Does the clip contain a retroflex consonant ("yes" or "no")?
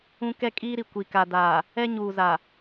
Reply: no